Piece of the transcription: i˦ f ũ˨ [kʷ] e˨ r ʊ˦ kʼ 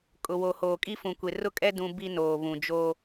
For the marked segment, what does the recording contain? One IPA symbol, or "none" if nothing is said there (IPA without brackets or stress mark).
kʷ